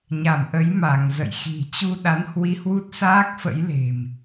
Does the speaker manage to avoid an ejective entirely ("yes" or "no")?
yes